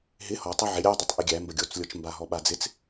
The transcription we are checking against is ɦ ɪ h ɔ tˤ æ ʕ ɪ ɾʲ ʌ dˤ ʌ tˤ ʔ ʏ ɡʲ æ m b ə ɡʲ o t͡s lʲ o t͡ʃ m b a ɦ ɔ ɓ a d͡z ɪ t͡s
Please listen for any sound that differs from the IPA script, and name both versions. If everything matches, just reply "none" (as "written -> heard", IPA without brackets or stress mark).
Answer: ʏ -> ɪ